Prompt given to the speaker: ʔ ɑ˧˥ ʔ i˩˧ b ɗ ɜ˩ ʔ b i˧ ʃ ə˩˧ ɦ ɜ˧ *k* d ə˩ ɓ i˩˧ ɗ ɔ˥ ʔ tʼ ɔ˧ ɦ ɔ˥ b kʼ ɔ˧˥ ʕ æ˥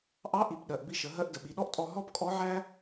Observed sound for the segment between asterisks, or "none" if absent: ʔ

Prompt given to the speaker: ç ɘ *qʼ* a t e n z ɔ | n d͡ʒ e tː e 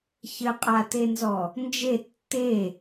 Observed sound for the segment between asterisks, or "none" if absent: qʼ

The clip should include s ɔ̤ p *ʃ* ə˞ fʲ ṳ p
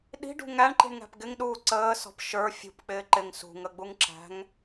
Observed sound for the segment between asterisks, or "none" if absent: ʃ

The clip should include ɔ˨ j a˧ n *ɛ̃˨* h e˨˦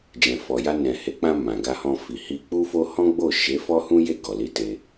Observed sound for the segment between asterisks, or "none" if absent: ɛ̃˨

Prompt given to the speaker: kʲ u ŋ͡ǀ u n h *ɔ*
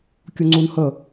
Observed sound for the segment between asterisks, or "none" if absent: ə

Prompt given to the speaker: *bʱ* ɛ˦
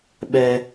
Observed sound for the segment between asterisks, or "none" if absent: ɓ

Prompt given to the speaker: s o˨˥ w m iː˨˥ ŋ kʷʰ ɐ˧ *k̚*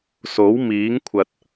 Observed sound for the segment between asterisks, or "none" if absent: t̚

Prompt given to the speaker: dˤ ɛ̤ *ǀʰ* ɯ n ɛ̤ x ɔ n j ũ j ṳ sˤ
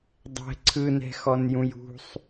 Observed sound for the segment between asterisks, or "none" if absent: ǀʰ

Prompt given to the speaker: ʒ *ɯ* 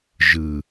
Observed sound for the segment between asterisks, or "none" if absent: ɯ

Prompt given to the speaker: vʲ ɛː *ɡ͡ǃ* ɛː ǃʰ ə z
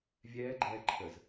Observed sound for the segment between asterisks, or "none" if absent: ɡ͡ǃ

